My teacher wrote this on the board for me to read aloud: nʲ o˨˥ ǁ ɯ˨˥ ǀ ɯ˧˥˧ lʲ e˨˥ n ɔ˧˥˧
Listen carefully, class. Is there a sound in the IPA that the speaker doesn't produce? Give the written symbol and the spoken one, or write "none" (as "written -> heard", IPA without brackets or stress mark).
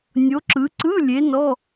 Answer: none